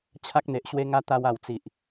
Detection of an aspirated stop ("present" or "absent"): present